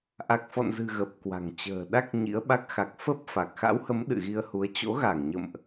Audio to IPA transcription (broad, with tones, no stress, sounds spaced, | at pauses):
ʔ a˨˩ k̚ f ɔ̰˧˨ n z ɨ̤˨˩ ɣ ə˨˩ p̚ k w a̤˨˩ ŋ t͡ɕ ə̤ː˨˩ ɗ a˦˥ k̚ ɲ ḭ˧˥ ə̯ ɓ a˦˥ k̚ x a˨˩ k̚ f ə˦˥ p̚ f a˨˩ k̚ x a̰˧˥ w h ə˨˦ m ɗ ɨ̰˧˨ ɣ i˧ ə̯ h u˨˦ ə̯ t͡ɕ o̰˧˥ ɣ a˧˩ ŋ ɲ ə̰˧˨ m ʔ